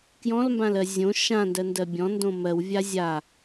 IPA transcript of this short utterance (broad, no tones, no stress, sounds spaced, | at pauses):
k j ɔ̃ l m b ã l ɜ zʲ õ ʃ ã n d ɜ n d ɜ bʲ ɔ̃ n d õ m ɜ w vʲ a zʲ a